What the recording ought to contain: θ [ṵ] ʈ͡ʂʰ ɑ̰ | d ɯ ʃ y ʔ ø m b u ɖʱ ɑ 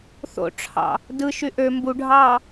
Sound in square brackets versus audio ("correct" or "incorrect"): incorrect